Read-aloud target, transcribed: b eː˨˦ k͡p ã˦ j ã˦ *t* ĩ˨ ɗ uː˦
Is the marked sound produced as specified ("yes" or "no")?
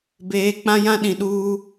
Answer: no